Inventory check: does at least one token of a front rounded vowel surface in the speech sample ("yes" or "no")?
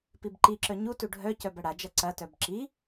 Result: yes